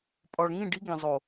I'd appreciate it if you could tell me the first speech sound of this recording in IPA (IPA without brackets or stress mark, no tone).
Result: pʼ